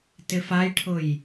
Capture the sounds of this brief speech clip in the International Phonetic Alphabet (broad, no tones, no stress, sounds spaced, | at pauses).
t ɪ f a j ʈʰ ʊ j